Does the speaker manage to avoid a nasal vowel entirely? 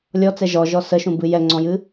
no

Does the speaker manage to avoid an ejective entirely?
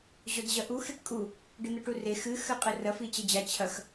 no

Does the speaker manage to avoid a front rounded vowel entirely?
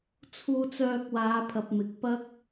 no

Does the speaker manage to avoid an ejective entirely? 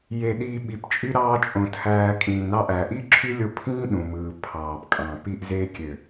no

